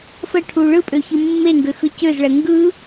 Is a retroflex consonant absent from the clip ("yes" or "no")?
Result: no